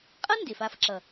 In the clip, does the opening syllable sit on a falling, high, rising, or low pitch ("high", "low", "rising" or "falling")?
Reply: high